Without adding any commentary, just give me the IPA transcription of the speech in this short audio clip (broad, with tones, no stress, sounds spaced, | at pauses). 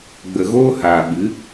ɡ͡b ə˨ ɣ oː˧ h aː˨ ɓ ɨ˨˦